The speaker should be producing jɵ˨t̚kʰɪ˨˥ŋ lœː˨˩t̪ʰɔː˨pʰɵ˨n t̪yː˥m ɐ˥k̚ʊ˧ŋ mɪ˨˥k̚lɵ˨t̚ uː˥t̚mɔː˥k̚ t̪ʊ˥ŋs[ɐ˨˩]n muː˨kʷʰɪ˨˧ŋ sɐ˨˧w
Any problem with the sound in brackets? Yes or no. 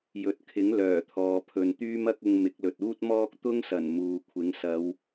no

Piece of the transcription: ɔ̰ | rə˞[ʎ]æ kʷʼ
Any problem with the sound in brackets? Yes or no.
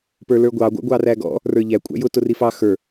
no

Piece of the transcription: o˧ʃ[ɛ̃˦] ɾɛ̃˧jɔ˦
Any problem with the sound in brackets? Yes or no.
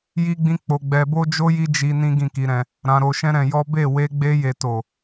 no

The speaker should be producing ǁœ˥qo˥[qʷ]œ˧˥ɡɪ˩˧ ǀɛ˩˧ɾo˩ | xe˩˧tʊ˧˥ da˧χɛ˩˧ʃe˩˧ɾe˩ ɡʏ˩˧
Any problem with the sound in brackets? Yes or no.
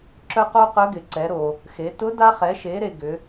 yes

